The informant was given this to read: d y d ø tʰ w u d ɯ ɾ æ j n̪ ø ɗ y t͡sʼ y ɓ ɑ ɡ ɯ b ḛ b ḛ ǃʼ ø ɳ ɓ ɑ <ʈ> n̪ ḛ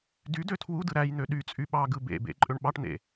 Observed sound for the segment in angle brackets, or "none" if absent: ʈ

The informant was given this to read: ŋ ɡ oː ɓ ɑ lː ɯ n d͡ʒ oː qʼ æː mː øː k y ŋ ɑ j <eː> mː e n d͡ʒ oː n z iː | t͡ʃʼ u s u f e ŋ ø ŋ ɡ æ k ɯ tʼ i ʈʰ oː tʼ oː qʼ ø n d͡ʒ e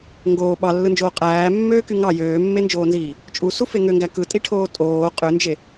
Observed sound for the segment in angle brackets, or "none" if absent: øː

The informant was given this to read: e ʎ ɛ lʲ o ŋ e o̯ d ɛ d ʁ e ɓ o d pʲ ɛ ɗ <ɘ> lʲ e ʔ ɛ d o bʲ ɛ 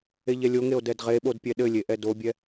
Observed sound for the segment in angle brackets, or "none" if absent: ɘ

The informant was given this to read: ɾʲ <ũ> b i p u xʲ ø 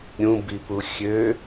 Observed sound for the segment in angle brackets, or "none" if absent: ũ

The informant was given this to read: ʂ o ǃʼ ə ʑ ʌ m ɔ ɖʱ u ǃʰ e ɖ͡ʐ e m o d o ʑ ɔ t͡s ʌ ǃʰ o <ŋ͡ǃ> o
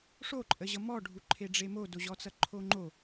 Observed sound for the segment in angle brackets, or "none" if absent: ŋ͡ǃ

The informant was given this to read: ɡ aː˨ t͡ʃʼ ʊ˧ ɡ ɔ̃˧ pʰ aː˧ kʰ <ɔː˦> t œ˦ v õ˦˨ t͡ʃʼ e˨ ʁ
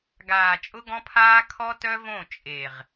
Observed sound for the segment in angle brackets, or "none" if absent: ɔ˦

